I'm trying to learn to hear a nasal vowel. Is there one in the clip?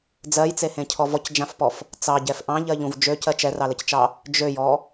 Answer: yes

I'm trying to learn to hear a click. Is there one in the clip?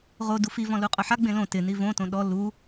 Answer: no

